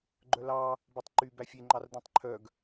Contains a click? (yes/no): yes